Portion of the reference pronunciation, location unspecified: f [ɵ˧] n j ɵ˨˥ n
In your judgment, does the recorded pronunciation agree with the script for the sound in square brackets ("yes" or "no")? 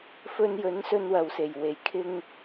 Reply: yes